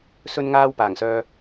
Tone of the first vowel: high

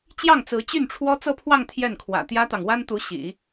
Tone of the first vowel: falling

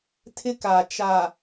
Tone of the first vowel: high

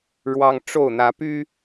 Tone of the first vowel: high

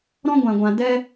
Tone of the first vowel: high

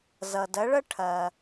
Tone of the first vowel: low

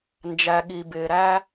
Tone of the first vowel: low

